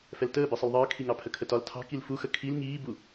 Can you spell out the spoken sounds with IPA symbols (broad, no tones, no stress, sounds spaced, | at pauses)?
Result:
f ɛ l t əː b i sˤ ə l ðˤ əː kʰ i ŋ ɑ pʰ ə kʰ ə t ɒ l tʰ ɑ̤ k i l f u x ə kʰ i l ŋ iː b u